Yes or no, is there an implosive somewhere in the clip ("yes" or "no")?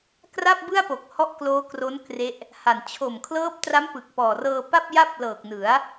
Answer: no